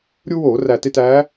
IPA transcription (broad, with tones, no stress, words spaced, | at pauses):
ɾʲu˦woː˧˩˧ ræ˨˩te˦˨t æː˨˦